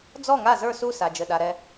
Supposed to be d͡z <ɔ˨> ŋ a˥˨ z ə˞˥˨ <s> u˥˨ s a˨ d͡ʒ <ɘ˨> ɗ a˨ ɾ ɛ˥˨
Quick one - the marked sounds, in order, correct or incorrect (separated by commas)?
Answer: incorrect, correct, correct